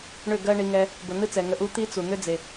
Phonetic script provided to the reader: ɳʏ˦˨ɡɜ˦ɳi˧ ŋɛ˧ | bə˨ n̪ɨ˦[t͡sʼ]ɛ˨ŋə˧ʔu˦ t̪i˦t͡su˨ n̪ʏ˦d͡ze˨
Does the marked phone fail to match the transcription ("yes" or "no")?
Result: yes